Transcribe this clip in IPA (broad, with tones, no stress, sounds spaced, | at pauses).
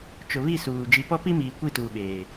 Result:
t͡ʃ ʊ˨ β i˦˨ s uː˨ d͡ʒ i˨ p ɔ˦ p i˦ m iː˨ kʷ i˦˨ t uː˨ ɓ eː˨